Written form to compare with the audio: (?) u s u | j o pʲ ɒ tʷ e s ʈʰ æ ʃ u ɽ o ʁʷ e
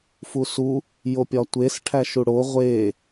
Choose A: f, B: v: A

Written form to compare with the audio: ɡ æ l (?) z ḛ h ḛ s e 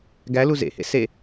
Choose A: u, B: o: A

